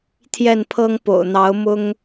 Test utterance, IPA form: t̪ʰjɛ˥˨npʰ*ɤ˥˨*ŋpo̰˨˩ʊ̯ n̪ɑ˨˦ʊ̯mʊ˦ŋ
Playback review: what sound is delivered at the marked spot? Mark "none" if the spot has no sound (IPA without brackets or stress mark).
ɤ˦